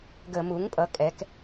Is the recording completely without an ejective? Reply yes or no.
no